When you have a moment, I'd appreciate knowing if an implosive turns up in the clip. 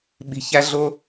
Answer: yes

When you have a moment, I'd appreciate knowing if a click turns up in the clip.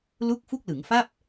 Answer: no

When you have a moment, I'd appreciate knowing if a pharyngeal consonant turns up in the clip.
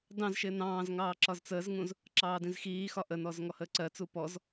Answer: no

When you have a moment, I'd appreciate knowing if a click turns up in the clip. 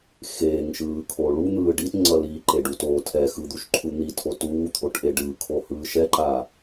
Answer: yes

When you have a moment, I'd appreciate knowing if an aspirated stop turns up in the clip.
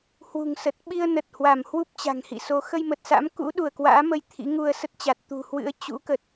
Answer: yes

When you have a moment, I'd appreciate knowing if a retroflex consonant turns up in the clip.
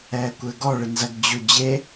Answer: yes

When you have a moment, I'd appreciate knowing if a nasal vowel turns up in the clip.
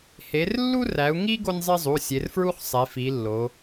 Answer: no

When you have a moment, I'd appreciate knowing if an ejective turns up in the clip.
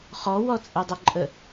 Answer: yes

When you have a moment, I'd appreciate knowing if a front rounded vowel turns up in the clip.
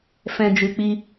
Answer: no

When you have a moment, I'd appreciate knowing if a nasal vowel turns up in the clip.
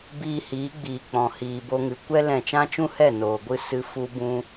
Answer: yes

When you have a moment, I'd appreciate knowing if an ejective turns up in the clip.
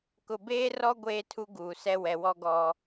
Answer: no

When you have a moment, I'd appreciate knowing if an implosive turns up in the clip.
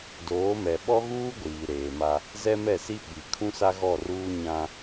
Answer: yes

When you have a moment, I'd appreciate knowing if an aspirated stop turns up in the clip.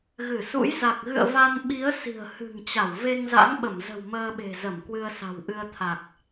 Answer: yes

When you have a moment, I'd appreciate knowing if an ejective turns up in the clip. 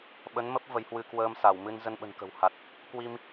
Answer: no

